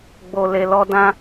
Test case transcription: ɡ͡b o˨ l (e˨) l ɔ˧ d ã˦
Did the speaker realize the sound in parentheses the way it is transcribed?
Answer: yes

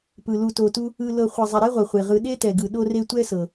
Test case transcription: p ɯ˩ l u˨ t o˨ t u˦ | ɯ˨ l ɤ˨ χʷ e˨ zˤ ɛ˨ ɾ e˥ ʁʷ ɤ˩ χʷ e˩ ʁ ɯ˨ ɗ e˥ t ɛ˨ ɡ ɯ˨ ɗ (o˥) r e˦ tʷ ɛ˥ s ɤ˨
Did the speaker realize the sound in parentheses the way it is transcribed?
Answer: no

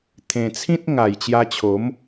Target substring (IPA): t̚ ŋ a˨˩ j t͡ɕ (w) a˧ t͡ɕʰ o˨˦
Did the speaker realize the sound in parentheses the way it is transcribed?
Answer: no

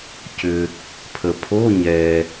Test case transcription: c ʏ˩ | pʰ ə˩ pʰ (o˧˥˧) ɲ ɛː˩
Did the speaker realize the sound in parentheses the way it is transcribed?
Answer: yes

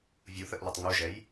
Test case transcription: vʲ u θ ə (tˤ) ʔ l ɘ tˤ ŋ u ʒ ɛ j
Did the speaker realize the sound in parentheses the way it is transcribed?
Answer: no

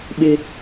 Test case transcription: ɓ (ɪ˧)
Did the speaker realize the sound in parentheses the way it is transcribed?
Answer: yes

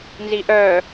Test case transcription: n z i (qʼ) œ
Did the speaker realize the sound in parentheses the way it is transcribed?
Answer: no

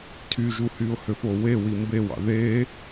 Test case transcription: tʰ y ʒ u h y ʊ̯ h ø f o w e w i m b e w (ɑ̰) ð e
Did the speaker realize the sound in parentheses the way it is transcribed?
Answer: yes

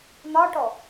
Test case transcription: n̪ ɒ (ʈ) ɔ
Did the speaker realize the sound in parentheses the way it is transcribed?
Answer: yes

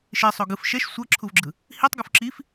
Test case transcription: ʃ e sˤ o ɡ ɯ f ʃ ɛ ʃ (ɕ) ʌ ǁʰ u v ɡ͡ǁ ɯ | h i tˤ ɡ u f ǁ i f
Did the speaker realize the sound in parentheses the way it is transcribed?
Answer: no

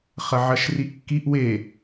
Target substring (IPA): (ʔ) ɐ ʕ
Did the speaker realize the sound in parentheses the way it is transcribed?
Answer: no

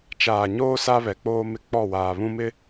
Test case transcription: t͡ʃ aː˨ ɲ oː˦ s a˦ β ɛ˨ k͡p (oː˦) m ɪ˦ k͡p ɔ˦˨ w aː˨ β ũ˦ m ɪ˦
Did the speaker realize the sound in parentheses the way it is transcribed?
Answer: yes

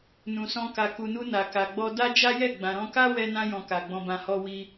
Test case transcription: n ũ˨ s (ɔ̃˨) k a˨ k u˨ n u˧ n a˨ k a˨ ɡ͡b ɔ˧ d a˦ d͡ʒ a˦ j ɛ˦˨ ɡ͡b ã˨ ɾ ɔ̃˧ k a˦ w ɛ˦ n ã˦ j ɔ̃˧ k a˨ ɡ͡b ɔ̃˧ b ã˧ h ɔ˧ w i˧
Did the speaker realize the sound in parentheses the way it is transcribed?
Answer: no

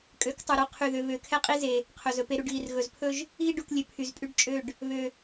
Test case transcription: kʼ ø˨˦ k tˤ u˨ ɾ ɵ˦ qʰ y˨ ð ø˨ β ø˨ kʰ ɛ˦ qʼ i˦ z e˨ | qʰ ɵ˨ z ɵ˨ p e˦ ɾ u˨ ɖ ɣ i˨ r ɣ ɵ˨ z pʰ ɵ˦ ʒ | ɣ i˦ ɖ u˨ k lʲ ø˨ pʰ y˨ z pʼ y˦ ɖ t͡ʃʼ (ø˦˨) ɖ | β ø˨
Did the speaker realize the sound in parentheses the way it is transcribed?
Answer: yes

